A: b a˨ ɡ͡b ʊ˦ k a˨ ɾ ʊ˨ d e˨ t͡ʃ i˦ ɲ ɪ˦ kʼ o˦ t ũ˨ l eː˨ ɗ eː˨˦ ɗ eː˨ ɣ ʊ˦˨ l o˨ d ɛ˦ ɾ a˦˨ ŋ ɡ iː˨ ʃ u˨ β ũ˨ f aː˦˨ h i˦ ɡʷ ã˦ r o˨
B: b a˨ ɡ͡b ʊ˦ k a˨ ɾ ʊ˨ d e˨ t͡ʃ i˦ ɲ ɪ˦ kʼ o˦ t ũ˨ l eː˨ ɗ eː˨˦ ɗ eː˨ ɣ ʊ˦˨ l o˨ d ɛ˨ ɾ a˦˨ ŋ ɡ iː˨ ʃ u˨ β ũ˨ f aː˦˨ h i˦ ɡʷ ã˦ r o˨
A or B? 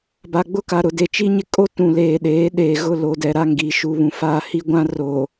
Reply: B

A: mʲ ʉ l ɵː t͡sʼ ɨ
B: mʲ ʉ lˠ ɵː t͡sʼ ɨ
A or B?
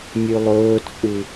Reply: B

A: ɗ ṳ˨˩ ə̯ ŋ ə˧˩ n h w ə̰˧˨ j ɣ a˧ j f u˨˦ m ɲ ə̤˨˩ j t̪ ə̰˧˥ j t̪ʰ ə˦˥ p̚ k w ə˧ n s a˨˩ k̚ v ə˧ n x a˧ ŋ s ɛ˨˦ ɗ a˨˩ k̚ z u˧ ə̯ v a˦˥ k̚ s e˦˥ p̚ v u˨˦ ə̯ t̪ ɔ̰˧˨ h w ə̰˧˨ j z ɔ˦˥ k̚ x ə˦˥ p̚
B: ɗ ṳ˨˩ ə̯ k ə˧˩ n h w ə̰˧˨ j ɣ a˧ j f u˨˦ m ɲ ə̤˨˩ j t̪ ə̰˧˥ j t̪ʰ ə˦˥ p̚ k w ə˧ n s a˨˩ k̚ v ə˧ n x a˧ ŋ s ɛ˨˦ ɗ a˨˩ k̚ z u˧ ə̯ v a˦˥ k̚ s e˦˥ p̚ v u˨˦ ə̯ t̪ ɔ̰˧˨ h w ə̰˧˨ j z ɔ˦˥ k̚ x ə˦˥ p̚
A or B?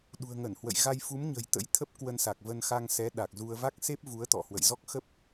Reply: A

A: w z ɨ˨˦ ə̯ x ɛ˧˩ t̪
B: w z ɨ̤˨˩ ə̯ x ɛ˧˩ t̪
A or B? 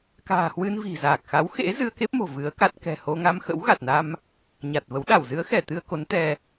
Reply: A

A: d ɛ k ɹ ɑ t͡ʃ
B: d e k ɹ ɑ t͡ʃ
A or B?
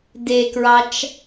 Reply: B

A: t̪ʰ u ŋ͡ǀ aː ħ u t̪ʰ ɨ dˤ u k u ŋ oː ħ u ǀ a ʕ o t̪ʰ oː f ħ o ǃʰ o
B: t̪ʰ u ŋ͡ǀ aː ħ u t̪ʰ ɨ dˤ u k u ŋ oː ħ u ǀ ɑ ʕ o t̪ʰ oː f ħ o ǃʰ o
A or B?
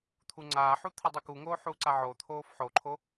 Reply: A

